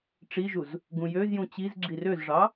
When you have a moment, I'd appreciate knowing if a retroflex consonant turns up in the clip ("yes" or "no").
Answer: yes